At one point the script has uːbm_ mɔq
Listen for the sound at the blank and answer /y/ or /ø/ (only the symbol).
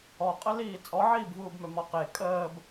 ø